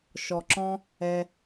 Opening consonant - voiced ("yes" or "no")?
no